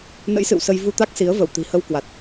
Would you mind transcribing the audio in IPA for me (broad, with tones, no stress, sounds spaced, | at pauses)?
n ə̰˧˥ j s ɨ̰˧˨ w s ə˧ j v u˧ t̪ a˦˥ k̚ s i˨˦ ə̯ v ə˧˩ w t̪ i̤˨˩ h ə˧ w k w a˨˩ t̚